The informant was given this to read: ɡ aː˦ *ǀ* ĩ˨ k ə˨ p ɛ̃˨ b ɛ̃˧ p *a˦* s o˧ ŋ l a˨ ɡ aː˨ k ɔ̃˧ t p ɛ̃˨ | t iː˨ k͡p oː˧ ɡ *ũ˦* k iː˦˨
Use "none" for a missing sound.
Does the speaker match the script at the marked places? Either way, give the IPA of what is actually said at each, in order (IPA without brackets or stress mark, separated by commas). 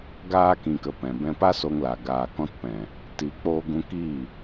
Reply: k, a˦, ũ˧